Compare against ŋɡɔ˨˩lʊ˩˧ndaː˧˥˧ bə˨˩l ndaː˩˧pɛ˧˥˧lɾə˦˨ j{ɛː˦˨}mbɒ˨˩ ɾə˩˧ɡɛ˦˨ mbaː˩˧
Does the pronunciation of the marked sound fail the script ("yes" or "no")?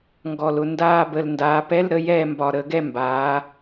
no